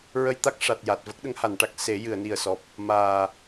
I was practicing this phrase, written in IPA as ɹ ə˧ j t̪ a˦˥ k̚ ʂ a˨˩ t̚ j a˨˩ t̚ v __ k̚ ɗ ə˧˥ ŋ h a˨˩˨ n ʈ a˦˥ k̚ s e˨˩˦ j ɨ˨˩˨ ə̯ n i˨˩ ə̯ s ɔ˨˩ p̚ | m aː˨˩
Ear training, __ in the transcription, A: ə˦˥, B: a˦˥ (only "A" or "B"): A